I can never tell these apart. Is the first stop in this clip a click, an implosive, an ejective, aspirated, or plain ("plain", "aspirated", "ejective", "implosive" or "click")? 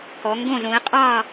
plain